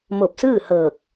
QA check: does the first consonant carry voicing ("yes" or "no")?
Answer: yes